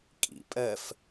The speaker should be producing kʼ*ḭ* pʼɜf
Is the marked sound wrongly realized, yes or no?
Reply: no